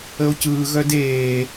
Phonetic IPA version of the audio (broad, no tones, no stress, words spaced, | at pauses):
əo̯cɯːɣœd eː